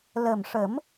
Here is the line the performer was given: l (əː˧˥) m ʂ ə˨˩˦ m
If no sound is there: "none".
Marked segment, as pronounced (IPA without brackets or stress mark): əː˨˩